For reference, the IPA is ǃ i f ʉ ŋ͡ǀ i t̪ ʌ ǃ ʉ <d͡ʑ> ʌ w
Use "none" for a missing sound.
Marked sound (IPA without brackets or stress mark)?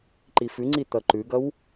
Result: ɡ